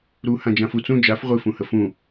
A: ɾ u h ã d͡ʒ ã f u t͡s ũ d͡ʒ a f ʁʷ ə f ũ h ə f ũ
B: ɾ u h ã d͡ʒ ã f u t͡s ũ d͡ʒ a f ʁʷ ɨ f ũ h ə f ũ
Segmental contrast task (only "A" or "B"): B